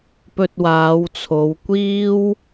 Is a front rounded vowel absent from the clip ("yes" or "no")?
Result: yes